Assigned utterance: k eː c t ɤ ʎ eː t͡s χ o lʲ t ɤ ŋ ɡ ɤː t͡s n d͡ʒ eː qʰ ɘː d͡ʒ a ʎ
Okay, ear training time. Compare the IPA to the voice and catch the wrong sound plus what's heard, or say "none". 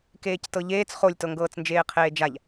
ɘː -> eː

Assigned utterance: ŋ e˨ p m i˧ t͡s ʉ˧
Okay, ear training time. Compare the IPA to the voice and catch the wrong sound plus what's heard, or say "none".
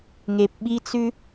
m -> ɓ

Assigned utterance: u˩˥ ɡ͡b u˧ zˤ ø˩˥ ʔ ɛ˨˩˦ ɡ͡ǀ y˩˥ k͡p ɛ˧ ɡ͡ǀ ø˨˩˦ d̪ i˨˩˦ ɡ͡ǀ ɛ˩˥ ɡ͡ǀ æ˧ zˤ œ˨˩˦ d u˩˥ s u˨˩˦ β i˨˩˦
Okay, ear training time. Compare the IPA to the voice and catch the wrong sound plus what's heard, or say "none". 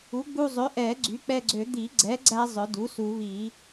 none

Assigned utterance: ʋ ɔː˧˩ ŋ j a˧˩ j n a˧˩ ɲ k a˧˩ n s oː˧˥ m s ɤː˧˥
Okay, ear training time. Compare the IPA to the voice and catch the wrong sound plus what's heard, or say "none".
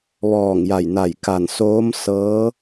ɲ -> j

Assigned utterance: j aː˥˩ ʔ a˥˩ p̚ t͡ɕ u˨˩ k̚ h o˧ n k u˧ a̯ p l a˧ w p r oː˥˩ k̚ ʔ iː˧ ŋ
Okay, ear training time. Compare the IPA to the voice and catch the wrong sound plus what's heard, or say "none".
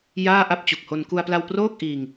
none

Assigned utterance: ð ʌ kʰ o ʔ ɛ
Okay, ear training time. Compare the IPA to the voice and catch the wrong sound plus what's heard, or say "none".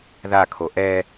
ʌ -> a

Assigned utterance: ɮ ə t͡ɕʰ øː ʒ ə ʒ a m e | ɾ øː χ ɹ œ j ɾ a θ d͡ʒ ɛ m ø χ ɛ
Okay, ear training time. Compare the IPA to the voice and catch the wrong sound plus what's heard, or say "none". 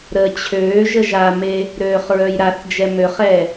ɮ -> ɾ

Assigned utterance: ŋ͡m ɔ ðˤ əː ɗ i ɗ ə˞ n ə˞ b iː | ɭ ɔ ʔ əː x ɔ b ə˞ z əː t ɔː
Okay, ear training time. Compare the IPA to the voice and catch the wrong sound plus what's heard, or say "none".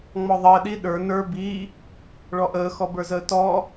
none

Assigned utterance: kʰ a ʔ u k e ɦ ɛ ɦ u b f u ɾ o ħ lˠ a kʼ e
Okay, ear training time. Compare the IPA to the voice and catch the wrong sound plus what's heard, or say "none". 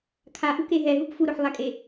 none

